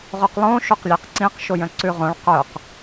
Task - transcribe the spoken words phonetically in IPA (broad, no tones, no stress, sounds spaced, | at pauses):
ʁ o q lˠ õ ʃ o q lʲ æ q ǀ ĩ q ʃ o j œ̃ ǀ ʉ ʁ õ ɭ q œ q